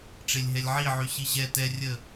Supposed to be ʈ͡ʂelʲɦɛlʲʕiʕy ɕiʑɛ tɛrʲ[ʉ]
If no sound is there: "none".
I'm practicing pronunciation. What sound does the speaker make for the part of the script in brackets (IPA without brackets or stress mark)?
ə